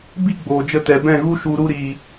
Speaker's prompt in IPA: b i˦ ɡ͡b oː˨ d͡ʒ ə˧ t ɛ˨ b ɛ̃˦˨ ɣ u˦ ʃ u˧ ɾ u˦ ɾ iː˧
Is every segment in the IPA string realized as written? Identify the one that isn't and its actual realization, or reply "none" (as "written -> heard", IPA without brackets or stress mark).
none